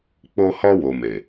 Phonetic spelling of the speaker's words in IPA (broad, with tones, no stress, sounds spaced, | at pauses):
k͡p o˧ h ɔ˧ w o˨ m e˨